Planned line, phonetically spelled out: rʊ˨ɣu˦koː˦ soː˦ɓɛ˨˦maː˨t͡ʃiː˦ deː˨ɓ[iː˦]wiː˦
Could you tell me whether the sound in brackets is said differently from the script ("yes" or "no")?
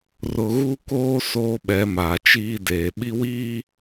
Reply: yes